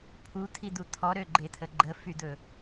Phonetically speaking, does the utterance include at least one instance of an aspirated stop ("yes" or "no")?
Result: yes